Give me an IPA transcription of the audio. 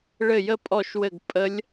ɭ ɘ˦˨ j ə˦˥ pʼ ɔ˦˨ ʃ w ɘ˦˨ ɡ pʼ ə˦˥ lʲ

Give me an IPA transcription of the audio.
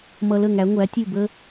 m ʌ˧ l ə˦˨ ŋ æ˨˦ ŋʷ æ˨˦ tʲ u˦˨ b ə˦

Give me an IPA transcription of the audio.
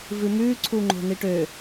v ɨ m ʉ ǀʰ u ŋ͡ǃ o̤ n i ʈ ø

